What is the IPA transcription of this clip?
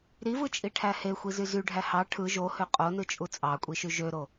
ɾivɯt͡ʃʼiʈʰæ hexʷizy zyɖʱæ hɑ ʈʰɯ ʒohø qʼonɯt͡ʃʼu t͡sʼɑkʷʼiʃy ʒøɾo

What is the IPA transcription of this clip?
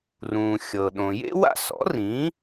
rũː˩ xʲɤ˩ɗõ˩ jḛ˥wa̰˥˩sɔ̰˩˥ rĩ˩˥

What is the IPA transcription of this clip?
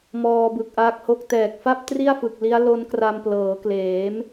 mɔː˧bɯ˨˩k̚ʔaː˦˥k̚ho˥˩k̚ tɛː˨˩k̚fa˥˩p̚ tri˥˩a̯fɯ˨˩k̚li˦˥a̯ lo˦˥nkra˧mplɤː˩˦kleː˩˦m

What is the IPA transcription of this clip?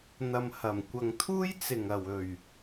n̪ɐ˨mhɐ˨˩m kʷɐ˨ŋt̪ʰuː˥j t͡sɪ˨˩ŋɐ˨˩wɵ˨˩ɥ

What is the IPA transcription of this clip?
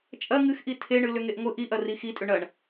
t͡ʃʼɐ ŋɨxʔi tʰeɳɨ lʏŋeʔŋʷɨ ʔiʔɐ rixitʼʏ ɳɐɳ

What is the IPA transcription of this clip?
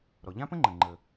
ɾɔ˩ʎã˥pə̃˥ŋ͡ǃə̃˩ ŋ͡ǃə˩

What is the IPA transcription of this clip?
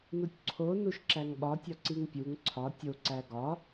nutʲǀʰo nuʃǁæŋɓɒtʲɒ ǀiŋpʲuŋ ǀʰɒ tʲoǀæ ɡɒ

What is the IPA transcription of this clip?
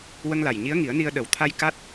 wə˧ŋla˨˩j ɲi˧˥ə̯ŋi˨˩˦ə̯ni˧ə̯ɗə˨˩˦w t̪ʰa˧j ka˦˥t̚

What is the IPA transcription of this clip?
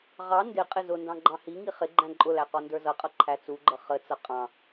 ʁɑ ndɪ qʼɪzʊndɑ̃ ɡ͡ǃɑ̃hiŋi χɪ ɡ͡ǃæ̃ǃʼʊlæ qɔndə˞zʌqʼʌ ǃʰæt͡suɡ͡ǃʌ χət͡sʌ qʼɑ̃

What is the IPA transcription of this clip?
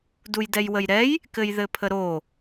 dujdɛjwəjɾɛj | kɘjðɘpʰəɾo

